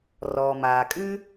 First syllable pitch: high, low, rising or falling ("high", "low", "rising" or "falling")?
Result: low